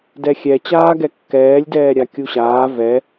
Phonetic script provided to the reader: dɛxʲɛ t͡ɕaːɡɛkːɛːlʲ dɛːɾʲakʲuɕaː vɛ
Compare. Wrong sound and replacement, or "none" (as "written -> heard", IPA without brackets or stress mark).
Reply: none